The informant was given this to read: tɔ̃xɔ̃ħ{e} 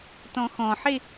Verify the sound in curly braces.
correct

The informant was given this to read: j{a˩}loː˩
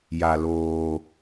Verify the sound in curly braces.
correct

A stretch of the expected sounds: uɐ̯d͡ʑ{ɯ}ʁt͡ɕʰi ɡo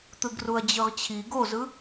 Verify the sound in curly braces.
correct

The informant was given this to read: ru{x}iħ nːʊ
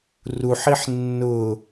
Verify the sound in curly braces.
incorrect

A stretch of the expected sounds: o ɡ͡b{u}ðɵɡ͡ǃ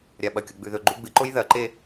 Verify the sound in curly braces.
incorrect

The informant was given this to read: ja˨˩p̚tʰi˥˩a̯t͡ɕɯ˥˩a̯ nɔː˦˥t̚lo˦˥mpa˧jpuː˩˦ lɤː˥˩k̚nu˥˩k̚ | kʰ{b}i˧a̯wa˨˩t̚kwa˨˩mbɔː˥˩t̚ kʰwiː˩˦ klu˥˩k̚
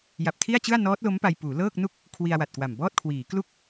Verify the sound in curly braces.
incorrect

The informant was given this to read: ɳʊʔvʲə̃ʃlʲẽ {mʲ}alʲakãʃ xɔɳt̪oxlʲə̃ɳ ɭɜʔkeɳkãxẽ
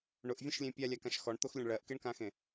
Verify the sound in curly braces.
incorrect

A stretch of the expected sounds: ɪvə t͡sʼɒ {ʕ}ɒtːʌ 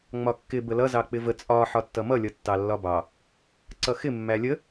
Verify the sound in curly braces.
incorrect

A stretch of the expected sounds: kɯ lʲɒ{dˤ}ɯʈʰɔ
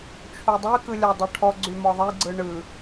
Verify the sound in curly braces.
correct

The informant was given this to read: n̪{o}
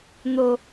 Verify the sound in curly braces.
correct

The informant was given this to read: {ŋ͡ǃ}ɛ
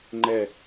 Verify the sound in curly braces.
correct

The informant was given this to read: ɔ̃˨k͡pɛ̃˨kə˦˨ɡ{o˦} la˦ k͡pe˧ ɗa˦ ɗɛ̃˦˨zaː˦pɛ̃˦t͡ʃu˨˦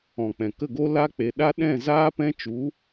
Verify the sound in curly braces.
correct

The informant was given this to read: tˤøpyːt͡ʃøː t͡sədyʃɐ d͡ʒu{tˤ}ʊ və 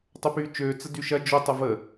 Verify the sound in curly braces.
correct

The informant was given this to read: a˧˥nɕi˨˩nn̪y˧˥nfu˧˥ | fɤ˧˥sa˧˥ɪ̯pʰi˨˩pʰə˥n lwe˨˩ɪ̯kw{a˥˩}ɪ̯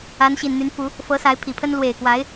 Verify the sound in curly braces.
incorrect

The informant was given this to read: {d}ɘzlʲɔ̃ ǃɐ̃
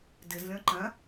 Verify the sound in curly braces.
correct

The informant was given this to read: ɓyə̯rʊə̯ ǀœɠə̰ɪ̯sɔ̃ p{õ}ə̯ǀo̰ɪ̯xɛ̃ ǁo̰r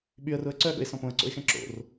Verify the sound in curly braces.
correct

